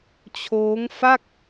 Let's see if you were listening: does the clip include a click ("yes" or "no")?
no